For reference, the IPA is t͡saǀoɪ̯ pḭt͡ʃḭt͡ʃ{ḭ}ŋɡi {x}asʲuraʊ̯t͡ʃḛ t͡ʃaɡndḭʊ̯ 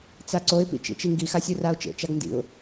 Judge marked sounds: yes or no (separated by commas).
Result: no, yes